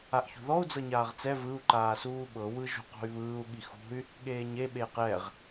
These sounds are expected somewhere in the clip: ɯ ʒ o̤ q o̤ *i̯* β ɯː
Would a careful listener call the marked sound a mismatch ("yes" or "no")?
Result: yes